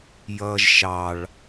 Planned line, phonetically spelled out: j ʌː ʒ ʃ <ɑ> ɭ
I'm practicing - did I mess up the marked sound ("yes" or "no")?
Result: no